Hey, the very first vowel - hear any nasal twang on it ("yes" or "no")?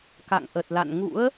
no